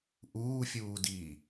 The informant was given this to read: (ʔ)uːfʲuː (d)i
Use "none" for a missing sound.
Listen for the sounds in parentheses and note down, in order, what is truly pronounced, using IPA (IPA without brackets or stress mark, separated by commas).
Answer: ʔ, d